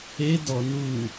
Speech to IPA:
e d ɔ n u

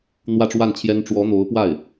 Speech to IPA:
n̪ w ä˥˧ ʈ͡ʂ w a˥˩ n t͡ɕʰ j ɛ˥ n ʈ͡ʂ w ɔ˧˥ n̪ o˧˥ ʊ̯ p w a˥˩ ɪ̯

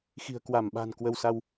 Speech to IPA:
x i̤˨˩ ə̯ k w a˧˩ m ɓ a̤˨˩ n k w ə˧ w s a˧ w

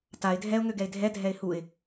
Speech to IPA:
t a ɪ̯ dʱ ɛ ʊ̯ ŋ ø ɡ ɛ ɪ̯ dʱ ɛ dʱ ɛ ɪ̯ h u ɪ̯

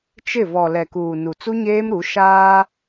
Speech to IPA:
t͡ʃ ɪ˦˨ v ɔ˨ l ɛ˨ k uː˨ n u˨ t͡s u˦ ɲ eː˦ m ɾ u˨˦ ʃ aː˦

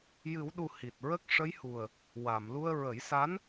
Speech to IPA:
j ɨ˨˩˦ w ɗ u˨˩ h i˨˩ t̚ ɹ ə˦˥ k̚ ʂ ə˧˥ j h u˨˩ ə̯ | w a˨˩˨ m l u˧ ə̯ ɹ ə˨˩˦ j s a˧˥ n

